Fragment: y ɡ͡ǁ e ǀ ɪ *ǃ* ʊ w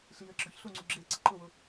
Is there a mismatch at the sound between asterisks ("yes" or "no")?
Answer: no